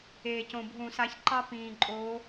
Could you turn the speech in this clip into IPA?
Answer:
e˨˩cõ˨˩bʱũ˧˩˧ sa˨˦çǃɑ˦ pĩː˨˩ǃʼoː˨˦

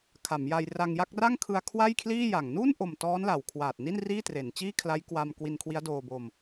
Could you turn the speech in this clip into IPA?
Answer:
kʰa˩˦m ja˧j ra˧ŋja˥˩k̚ ra˥˩ŋkʰɯ˧a̯ kʰwa˥˩jkʰliː˥˩ja˨˩ŋ nu˥˩nʔo˨˩m tɔː˦˥nla˩˦wkʰwaː˨˩t̚ni˥˩n riː˥˩tre˩˦nt͡ɕiː˥˩kʰla˦˥j kwa˧m kwi˧nkʰwi˦˥a̯doː˧bo˧m

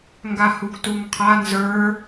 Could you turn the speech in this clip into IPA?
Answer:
ŋɡahuɡtuŋqʰa nzə˞

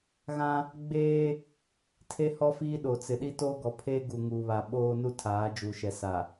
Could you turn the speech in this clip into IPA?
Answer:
ɣã˦ | ɡ͡beː˦ | tʰe˦hɔ˦fiː˦ ɗo˨t͡sɪ˨ ɗi˦toː˦ɡɔ˨˦pʰeː˦ ɡu˨ŋuː˨βa˨ ɓoː˦ nu˦tʰaː˨˦d͡ʒu˨ʃɛ˨ sa˨

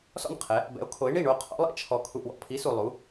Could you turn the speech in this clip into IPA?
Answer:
sɔ̰˥˩n qʰɛ˨˥ | bɛ̰˨˥o̯kʰo˨˥e̯ ɳi˥˩ɳo˥˩qʰɔ̰˨˥lˠɛ̰˨ t͡ʃʰɔ˨ kʰu˨ʔwɔ̰˨pʰi˨˥ su˨lˠu˨˥

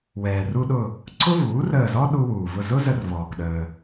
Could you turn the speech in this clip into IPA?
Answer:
wɛː˩ru˧ɗʊ˧˩ | ǀʰʊ˥vuː˩˥rəː˧˩zɔ˥ ɗu˧wuː˩vʊ˧˩zʊ˥ zə˧rvɔː˩kɗəː˩

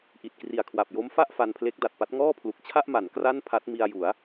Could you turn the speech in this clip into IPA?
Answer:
ʔi˨˩t̚kri˨˩a̯ kʰwa˨˩p̚jo˦˥mfa˥˩ʔ fa˧npʰle˦˥k̚da˨˩t̚pa˦˥t̚ ŋɔː˥˩pʰlu˨˩k̚t͡ɕʰa˥˩ʔma˩˦n kra˥˩npʰa˦˥t̚ mi˧a̯ju˩˦a̯

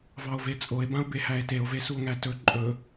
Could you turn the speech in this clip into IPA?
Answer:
vɑo̯vet͡sʼoe̯bão̯ behæe̯teo̯ve suo̯ŋætɵ ǃʼɵ

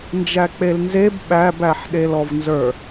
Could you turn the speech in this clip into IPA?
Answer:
nd͡ʒæk͡pelnzeb ɓæbæħ ɗelɔvnzə˞

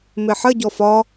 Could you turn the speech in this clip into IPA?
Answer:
mɪħə ɟɔfɒ

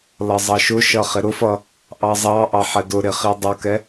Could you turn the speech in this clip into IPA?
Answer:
lʌzˤʌʃʊʃʌ χɪɾʊfʌ | ʔɑzˤɑʔɑ ħɛdʊɾɪ χidˤʊkɛ

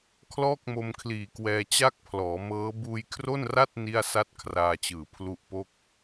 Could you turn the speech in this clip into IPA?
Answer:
kʰlɔː˥˩k̚mo˧mkʰliː˨˩kwɛː˧ t͡ɕa˥˩k̚pʰlɔː˩˦mɤː˦˥ buː˧jkʰro˥˩nra˥˩t̚ ni˥˩a̯ sa˥˩t̚kʰraː˧t͡ɕɯː˨˩ pʰlu˦˥ʔpo˥˩k̚

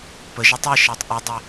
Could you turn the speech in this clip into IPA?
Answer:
pəʒɛ tˤeʃɑtˤ ʔedˤɛ

